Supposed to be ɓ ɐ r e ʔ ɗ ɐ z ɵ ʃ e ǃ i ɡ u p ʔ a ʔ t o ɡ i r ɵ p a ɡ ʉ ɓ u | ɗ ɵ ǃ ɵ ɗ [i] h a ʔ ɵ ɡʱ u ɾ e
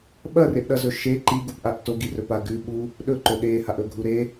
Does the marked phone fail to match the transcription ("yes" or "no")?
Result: yes